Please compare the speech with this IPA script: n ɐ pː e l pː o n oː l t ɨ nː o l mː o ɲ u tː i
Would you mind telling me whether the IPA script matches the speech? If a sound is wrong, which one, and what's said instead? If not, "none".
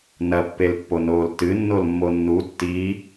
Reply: ɲ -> nː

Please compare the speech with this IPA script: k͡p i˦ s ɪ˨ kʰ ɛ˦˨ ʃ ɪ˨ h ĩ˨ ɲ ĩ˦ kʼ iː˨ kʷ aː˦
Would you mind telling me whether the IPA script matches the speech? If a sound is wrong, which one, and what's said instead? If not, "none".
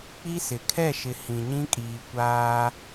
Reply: none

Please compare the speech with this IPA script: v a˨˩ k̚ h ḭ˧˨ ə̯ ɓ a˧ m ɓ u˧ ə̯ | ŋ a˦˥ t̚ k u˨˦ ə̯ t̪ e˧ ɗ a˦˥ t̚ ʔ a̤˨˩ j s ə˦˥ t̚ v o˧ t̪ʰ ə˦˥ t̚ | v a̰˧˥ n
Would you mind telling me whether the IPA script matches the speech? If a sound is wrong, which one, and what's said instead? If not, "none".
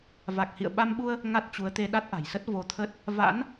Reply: k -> t͡ɕ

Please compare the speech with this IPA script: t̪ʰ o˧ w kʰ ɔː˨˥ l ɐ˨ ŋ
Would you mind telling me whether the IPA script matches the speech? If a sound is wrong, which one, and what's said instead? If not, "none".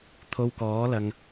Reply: kʰ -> k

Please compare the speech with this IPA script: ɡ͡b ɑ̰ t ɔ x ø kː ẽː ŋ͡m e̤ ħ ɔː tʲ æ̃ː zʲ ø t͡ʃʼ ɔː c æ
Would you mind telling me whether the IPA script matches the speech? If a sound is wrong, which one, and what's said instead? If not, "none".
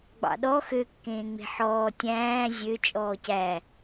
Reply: t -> ɗ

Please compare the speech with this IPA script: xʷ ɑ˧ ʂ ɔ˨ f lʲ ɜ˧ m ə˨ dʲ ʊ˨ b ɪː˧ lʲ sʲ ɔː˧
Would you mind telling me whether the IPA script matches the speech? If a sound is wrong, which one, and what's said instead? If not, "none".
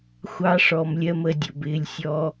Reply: f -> m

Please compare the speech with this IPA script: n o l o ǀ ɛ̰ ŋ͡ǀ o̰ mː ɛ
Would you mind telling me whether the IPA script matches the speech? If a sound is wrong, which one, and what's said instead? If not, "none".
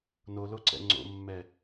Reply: none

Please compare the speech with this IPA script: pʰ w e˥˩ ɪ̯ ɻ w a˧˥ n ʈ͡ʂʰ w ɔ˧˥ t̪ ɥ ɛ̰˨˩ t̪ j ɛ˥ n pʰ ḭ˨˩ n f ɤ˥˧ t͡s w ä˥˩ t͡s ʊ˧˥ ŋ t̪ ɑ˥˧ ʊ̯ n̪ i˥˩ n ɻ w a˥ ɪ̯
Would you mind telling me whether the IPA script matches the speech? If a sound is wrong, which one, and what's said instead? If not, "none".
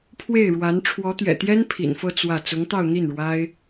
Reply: none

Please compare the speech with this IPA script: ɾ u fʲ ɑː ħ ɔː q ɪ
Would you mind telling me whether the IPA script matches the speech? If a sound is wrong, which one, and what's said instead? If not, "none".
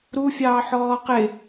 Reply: none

